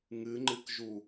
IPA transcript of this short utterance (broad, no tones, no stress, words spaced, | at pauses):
ŋɨŋ͡ǃɨkʒu